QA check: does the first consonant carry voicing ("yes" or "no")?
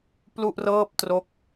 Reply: no